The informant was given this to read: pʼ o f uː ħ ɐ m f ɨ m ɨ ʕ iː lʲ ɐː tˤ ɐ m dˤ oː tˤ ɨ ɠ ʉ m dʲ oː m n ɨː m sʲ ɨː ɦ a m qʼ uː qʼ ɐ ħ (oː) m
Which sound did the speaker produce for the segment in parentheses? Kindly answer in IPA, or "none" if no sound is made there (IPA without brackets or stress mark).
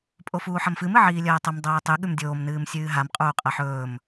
ɵː